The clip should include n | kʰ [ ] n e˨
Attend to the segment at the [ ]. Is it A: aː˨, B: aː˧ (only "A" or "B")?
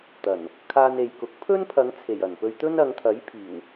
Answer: B